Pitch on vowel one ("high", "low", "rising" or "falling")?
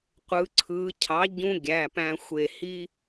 rising